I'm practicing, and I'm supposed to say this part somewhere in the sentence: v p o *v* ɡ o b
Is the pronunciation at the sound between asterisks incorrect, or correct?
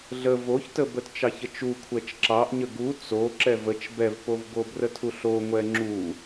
correct